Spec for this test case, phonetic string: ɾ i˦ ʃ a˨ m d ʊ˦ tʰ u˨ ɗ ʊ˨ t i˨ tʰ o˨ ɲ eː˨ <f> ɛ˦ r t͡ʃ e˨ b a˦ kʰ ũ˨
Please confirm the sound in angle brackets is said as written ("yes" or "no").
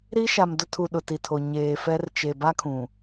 yes